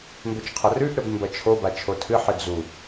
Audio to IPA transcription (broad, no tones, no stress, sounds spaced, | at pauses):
m b ɵ t͡ʃ qʰ ɐ r ʉ ʔ ɾ ɵ b m b ɐ t͡ʃʰ o b a t͡ʃʰ o tʰ ɨ ħ ɨ d͡z u